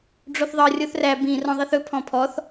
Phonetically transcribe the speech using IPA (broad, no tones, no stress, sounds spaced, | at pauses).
ɖ͡ʐ o θ ðˤ ɤ rʲ o θ r æ b ĩ r ɔ̃ ðˤ i θ ɵ pʰ ɔ̃ pʰ ɔ θ